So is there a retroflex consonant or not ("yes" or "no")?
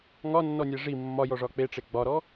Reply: yes